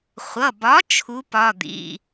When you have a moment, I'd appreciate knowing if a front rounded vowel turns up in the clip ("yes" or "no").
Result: no